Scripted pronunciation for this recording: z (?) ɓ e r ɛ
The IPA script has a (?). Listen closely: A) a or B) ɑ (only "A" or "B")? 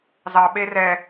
B